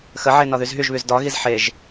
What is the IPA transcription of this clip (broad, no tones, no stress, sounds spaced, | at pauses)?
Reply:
x ə ʕ e n ɒ ð y z ɦ y ʒ β y z d ɒ ɣ i z ħ e ʒ